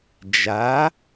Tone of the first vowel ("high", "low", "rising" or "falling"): rising